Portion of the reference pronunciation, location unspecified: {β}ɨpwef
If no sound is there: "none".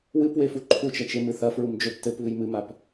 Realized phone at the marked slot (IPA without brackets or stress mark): w